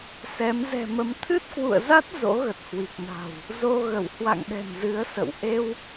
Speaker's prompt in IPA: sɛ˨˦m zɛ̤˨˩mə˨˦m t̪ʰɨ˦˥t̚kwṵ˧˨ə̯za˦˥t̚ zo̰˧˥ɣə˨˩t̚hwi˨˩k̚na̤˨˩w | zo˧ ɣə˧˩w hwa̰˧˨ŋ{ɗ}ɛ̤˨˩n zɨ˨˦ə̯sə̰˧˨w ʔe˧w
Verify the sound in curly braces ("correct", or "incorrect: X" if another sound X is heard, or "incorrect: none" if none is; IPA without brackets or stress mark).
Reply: correct